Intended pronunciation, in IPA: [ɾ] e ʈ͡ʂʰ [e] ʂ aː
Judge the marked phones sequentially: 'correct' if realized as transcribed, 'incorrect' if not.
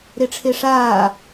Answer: correct, correct

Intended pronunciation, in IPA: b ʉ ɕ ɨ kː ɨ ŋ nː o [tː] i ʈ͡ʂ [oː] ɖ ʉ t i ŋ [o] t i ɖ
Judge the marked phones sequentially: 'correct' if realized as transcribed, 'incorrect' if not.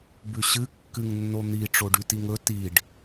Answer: incorrect: n̪, incorrect: o, incorrect: ɵ

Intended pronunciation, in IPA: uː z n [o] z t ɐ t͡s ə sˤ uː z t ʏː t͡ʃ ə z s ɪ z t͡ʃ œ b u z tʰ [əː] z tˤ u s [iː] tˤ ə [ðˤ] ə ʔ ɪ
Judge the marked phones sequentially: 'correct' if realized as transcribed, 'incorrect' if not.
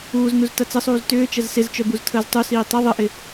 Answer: incorrect: u, correct, correct, correct

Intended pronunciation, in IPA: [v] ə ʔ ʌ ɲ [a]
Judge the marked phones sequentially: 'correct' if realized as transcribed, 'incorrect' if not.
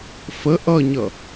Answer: incorrect: f, incorrect: ʌ

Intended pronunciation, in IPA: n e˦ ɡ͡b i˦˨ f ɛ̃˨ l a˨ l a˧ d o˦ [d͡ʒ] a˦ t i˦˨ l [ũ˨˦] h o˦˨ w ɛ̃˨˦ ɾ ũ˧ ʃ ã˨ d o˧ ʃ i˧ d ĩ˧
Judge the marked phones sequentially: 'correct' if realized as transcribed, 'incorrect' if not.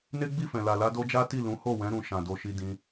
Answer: correct, correct

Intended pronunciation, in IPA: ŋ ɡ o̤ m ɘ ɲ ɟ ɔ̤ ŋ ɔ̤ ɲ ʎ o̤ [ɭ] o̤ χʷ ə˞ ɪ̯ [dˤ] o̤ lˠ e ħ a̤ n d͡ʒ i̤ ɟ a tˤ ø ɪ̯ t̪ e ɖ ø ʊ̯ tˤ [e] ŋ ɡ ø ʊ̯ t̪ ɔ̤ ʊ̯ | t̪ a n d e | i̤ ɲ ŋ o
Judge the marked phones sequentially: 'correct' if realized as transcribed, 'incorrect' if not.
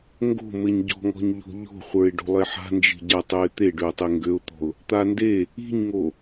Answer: incorrect: ʎ, incorrect: ɖ, correct

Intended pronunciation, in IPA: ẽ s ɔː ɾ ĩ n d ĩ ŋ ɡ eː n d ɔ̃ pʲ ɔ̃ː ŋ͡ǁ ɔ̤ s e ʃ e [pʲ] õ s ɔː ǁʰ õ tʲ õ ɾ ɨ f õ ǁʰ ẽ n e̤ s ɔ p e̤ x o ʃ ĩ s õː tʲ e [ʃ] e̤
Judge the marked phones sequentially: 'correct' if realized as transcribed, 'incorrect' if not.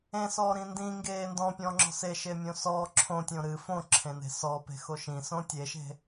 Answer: incorrect: mʲ, correct

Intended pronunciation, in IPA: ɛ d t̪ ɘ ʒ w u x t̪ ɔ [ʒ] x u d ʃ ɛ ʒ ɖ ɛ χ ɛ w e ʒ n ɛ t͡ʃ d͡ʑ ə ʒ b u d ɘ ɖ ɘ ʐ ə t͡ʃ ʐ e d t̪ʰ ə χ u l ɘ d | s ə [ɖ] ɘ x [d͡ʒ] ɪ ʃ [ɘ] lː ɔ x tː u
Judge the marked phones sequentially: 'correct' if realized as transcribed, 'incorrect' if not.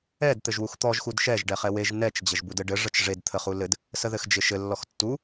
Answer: correct, incorrect: ð, correct, correct

